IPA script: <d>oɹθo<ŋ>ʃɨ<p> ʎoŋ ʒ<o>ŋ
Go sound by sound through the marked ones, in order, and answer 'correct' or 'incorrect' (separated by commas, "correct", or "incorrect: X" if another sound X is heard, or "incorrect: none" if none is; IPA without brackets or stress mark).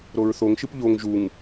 incorrect: ɾ, correct, correct, incorrect: u